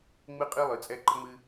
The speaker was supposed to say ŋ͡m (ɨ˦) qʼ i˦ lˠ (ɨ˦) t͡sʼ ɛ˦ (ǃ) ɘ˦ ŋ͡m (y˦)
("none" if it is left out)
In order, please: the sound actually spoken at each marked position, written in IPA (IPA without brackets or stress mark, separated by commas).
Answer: ɨ˦, ɨ˨, ǃ, ɨ˦